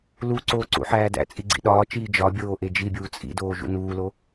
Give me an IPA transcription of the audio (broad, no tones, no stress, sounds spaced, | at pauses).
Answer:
l u ǀ oː ǀ ṵ ħ æː d æ̰ t͡sʼ i ɡ͡ǀ ḭ ɗ ɒː t͡ʃ iː d͡ʒ ɒ bʲ oː ʔ e d͡ʒ i bʲ uː t͡sʼ ḭ d oː ʒ ṵ n uː l o